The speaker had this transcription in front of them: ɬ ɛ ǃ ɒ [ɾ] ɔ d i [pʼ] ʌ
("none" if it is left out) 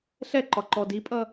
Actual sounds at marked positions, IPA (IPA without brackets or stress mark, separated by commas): ǃ, pʼ